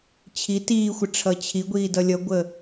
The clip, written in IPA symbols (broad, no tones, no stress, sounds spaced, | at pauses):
t͡ɕʰ i t iː xʷ ə ʈ͡ʂʰ ʌ t͡ɕʰ i ɡʷ iː d ʌ lʲ ʌ ɡʷ ə